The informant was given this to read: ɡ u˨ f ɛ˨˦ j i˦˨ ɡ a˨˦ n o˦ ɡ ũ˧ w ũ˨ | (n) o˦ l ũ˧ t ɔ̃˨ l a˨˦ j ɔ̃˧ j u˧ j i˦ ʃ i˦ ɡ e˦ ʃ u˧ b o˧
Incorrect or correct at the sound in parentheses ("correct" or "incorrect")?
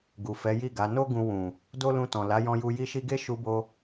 incorrect